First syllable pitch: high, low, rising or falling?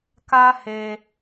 high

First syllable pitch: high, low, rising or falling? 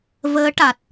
rising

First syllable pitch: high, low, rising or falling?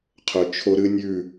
low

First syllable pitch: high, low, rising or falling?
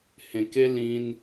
low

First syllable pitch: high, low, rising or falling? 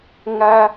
high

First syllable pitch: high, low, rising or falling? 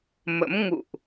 rising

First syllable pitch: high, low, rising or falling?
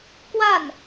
falling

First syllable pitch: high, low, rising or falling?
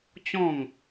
falling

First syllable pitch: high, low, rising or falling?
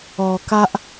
low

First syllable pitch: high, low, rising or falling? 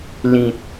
low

